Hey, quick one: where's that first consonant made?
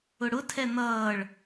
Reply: retroflex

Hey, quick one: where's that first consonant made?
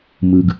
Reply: lips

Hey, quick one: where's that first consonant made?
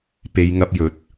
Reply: lips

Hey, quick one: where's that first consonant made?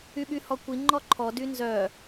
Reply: lips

